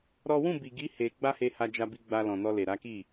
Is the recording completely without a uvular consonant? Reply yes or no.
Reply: yes